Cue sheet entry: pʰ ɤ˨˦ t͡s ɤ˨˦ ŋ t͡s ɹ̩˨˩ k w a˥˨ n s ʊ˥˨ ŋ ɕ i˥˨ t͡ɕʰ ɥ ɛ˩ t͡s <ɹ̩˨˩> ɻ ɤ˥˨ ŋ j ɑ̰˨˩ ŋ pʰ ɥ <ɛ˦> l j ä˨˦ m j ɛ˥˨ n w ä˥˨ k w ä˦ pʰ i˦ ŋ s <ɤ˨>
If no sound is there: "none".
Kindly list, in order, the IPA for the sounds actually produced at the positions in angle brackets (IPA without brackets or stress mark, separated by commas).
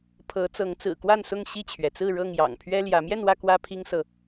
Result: ɹ̩˥˨, ɛ˦, ɤ˨